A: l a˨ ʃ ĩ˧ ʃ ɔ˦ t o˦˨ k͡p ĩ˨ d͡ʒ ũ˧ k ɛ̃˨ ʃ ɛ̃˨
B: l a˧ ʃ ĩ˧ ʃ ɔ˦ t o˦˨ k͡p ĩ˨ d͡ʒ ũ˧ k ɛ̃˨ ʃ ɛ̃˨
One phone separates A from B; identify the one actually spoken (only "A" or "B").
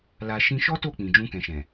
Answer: A